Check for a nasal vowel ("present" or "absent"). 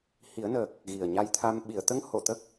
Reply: absent